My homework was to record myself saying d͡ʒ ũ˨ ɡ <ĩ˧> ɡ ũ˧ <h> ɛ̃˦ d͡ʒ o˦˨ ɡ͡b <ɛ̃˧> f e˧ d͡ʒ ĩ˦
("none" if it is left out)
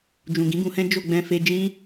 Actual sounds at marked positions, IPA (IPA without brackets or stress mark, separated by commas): ĩ˨˦, h, ɛ̃˧